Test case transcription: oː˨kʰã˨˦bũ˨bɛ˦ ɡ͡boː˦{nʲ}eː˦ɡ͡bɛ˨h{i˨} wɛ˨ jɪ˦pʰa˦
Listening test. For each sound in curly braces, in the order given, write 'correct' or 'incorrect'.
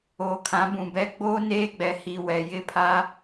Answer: incorrect: n, correct

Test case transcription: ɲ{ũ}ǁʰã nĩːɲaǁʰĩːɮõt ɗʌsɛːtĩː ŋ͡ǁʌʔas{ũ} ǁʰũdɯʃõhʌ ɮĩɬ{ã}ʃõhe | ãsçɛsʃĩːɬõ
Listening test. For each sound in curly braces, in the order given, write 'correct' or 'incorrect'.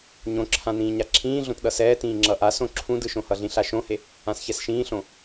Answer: incorrect: õ, incorrect: õ, incorrect: a

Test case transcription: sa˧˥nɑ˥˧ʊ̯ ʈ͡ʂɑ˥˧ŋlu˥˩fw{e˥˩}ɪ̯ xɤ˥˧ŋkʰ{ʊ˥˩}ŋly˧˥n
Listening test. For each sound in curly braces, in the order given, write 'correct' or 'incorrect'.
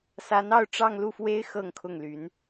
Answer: incorrect: e˥, correct

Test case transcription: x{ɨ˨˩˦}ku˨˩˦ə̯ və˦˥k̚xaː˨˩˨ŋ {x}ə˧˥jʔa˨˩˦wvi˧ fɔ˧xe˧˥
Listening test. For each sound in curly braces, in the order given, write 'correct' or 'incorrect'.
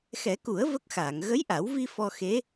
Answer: incorrect: ɛ˨˩˦, incorrect: ɣ

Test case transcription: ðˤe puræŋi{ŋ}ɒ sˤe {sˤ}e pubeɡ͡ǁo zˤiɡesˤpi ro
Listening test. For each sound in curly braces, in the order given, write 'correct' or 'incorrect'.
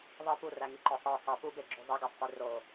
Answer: incorrect: ǃ, correct

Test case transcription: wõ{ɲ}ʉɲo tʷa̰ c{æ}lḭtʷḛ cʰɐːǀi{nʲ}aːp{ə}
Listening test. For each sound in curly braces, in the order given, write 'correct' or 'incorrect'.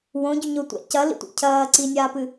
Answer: incorrect: ɟ, incorrect: ɐ, correct, incorrect: ɨ

